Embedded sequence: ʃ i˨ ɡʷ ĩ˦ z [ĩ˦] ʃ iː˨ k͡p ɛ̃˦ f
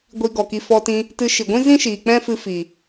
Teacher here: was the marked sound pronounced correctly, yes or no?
yes